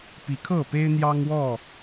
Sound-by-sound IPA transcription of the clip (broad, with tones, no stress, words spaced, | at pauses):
pi˨˦kʰɤ˥˨pe˦ɪ̯ n̪jɑ˦ŋwɔ˥˨